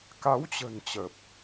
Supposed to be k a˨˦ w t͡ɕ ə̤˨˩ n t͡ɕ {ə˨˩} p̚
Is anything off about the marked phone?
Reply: no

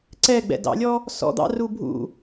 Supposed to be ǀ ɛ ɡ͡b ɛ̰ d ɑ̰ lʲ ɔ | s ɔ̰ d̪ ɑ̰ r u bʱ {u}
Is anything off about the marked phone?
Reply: yes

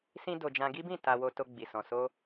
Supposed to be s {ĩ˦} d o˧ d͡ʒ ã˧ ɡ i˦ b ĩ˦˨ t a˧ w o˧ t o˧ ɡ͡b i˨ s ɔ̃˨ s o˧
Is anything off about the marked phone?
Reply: no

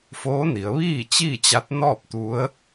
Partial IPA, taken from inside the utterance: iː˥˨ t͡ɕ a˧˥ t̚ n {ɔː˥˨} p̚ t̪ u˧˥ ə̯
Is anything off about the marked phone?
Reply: no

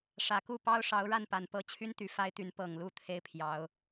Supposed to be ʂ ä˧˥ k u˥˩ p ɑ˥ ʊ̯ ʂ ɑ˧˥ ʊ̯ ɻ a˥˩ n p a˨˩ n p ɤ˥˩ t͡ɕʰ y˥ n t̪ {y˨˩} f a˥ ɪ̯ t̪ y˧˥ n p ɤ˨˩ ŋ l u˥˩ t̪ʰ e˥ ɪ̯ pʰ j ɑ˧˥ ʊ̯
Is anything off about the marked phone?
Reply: no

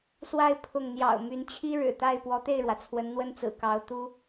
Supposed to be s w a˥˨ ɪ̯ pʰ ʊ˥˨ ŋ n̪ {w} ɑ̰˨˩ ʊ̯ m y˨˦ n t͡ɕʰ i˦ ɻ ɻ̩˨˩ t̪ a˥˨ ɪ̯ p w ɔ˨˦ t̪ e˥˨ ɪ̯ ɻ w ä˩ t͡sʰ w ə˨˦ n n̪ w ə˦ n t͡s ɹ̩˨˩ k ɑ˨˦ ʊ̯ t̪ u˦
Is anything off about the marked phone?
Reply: yes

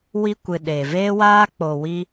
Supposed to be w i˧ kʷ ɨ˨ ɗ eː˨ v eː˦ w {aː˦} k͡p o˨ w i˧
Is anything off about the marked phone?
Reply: no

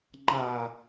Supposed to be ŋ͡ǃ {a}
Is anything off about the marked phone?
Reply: no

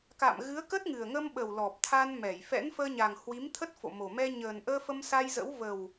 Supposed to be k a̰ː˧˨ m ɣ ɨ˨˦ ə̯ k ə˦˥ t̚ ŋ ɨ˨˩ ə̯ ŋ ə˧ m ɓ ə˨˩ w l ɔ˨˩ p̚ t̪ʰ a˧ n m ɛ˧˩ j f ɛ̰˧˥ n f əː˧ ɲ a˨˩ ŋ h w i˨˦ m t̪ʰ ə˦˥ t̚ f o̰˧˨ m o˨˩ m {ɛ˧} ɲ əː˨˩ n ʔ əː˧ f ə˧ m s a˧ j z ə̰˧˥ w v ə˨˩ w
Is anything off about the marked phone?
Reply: no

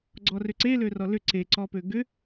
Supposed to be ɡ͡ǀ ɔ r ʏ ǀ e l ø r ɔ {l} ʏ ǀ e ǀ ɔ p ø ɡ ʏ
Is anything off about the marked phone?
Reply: no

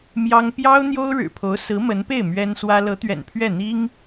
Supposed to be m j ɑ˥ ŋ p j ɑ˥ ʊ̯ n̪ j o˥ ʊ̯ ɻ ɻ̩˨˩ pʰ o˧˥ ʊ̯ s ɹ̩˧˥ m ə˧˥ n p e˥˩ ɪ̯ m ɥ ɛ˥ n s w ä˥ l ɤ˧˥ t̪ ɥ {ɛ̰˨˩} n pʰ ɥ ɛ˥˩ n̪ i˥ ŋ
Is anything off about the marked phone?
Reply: no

